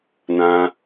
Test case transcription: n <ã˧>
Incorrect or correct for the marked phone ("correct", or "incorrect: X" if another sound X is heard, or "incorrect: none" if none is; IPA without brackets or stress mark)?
correct